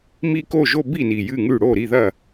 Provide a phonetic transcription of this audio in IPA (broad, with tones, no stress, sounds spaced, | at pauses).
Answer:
m i˥˧ k o˥˩ ʒ o˥˧ b i˥˩ n i˨˩ j ɨ˥˩ ŋ ʉ˥˩ ɽ o˥˩ ɾ i˥˩ ð ɐ˥˩